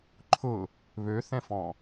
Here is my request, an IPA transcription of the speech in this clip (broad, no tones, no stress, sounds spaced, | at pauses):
ǃʰ ʊ | β ø θ ɛ̃ f ɔ̃